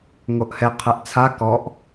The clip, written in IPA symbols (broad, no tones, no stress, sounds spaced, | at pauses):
ŋ o ʔ h ɛ qʰ ɛ ʔ t͡sʰ a k ɔ ʔ